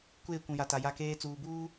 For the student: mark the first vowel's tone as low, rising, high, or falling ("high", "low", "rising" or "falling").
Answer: falling